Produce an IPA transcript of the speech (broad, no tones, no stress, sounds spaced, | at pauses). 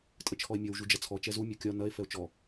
tʼ ə t͡ʃʰ ɔ e̯ mʲ ɔ w ʒ u d͡ʒ ɐ t͡sʰ ɔ t͡ʃ ɛ z u mʲ ɒ kʲ ɒ n ɐ e̯ f ɛ o̯ t͡ʃ ɔ